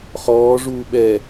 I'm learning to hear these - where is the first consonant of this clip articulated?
uvula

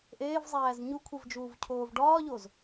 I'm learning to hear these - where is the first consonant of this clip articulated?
throat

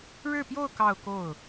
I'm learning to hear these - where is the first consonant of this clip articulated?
retroflex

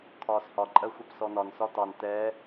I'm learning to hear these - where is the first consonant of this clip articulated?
velum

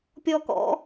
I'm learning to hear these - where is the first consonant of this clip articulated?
lips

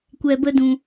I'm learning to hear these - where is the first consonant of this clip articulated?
velum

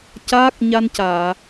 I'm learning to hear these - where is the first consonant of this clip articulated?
palate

